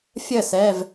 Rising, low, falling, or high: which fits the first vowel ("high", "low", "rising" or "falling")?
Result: falling